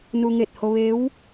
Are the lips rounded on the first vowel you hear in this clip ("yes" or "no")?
yes